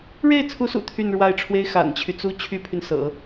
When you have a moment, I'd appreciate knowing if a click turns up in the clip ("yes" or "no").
no